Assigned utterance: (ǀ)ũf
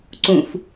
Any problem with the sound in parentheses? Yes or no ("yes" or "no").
no